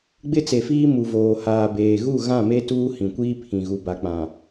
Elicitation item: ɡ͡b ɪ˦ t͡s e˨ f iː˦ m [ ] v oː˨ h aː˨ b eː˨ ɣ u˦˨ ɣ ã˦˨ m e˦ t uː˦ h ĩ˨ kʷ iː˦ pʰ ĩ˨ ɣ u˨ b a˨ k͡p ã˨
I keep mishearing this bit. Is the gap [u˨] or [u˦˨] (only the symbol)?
u˨